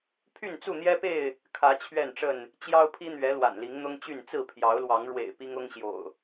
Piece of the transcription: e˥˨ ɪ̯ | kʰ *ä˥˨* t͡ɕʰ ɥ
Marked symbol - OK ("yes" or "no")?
no